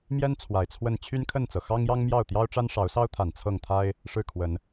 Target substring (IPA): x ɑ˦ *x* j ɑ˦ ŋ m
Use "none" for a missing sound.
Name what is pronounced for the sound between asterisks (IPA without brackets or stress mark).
ŋ